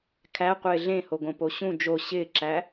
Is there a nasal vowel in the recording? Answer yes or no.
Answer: yes